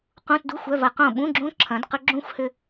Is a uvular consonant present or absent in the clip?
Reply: present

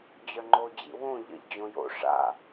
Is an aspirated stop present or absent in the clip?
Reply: absent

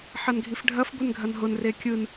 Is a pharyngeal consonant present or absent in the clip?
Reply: present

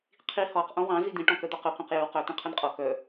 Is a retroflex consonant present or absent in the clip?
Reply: present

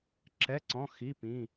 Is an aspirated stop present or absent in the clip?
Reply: absent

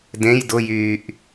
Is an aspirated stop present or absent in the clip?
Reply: absent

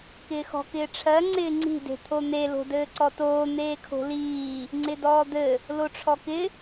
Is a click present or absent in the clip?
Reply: present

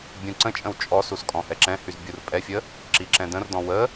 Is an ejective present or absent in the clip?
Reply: present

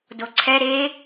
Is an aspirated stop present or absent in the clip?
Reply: present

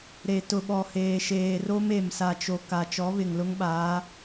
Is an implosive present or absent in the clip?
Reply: present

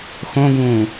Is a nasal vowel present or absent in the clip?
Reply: present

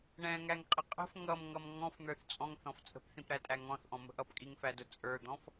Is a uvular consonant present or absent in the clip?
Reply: present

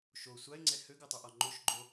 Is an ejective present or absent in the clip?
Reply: absent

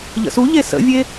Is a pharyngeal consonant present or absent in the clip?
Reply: absent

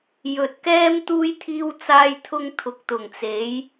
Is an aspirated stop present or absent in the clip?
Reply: present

